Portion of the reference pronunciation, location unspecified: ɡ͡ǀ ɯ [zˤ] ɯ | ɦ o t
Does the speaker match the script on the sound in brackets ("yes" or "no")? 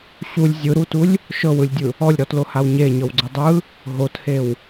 no